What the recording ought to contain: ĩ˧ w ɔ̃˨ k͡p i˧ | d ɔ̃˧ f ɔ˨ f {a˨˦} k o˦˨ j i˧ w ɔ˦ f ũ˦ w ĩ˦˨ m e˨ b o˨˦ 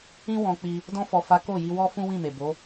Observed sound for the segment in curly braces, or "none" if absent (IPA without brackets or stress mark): a˨˦